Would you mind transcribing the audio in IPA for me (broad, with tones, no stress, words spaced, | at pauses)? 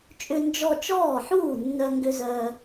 t͡ʃʼʏ˧nd͡ʒɔ˧ t͡ʃɔː˥˩ħuː˥˩nːœ˧ ŋɡʏ˧zœː˧